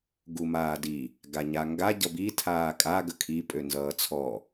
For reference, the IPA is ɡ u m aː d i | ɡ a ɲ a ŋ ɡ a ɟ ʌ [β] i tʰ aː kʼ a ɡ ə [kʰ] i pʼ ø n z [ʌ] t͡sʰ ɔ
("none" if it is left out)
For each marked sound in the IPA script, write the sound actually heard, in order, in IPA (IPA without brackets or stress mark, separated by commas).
b, kʰ, ʌː